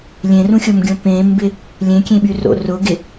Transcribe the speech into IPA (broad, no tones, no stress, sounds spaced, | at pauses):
lʲ ẽ r ũ xʲ o m ɡʲ õ p ẽ m b ɪ | lʲ ẽ kʲ ẽ ɓ y r o̰ r ʊ ɡ ɪ